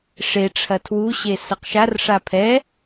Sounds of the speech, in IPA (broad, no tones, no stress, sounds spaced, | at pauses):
ʂ e ʈ͡ʂʰ ɐ tʰ w u ɕ e s ɐ q ʃ a r ʂ a pʰ ɛ